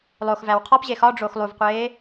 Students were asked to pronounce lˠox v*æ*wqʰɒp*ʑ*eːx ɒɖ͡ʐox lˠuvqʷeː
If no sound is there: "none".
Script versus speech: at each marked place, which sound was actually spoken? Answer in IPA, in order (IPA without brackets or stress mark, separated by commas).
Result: æ, ʑ